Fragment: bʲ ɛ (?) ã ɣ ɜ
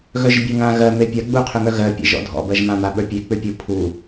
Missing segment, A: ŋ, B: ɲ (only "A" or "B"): A